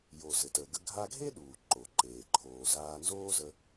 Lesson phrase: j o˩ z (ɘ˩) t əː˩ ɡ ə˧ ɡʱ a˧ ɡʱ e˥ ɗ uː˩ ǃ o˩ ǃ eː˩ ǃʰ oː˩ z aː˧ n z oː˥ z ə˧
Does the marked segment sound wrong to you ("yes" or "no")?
no